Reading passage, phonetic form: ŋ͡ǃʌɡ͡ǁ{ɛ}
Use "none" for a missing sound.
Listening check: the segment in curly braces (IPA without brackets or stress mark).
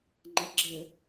ə